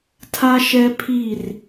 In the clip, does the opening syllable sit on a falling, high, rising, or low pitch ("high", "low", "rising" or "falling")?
high